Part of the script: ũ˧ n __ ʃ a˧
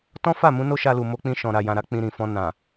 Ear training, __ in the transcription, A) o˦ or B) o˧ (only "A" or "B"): A